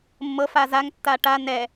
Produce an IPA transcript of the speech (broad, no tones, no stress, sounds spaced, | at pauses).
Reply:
mː ɤ f a z a ŋ tː a ʈ a n ɛ